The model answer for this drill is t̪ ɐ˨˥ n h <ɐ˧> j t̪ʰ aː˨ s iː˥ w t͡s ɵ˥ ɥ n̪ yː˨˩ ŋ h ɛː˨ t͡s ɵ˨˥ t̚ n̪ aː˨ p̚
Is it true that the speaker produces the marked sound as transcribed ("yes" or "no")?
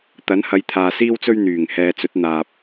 no